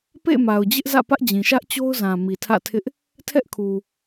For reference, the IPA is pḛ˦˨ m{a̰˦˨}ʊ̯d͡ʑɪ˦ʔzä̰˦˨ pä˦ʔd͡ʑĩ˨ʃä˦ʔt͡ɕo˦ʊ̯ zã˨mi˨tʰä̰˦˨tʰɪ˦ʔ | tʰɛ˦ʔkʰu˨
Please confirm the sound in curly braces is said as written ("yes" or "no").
no